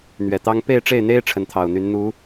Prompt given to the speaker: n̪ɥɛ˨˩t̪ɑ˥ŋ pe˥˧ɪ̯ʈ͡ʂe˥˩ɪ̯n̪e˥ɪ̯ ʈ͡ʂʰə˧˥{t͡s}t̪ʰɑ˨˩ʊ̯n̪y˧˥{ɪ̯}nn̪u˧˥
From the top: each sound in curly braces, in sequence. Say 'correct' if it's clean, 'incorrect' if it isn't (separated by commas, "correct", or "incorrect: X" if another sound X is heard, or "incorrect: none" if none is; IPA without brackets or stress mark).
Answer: incorrect: n, incorrect: none